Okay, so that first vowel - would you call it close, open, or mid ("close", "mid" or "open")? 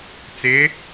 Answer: close